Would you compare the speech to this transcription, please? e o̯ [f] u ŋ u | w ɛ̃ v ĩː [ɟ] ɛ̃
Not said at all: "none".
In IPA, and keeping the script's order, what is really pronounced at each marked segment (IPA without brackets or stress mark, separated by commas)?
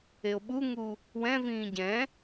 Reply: ɓ, ɟ